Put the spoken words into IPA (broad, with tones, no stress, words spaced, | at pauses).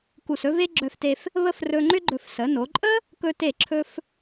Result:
ku˧˩sɵ˥ve˥ ɡ͡ǁœ˧fte˧f | βə˥˧frɵ˧ŋ͡ǃʏ˥ɡ͡ǃɵ˧˩f sə˩˧no˩˧ǃʼə˥ | kɵ˧te˧˩ǁʰɵ˧f